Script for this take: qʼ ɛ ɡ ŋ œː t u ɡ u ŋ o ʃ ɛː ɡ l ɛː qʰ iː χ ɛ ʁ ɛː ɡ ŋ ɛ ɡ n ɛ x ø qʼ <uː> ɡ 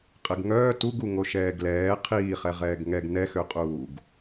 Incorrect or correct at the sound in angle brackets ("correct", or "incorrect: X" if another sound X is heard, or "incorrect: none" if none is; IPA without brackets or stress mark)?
correct